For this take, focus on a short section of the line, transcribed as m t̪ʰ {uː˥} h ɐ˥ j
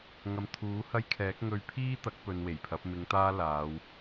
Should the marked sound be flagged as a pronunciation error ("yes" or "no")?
yes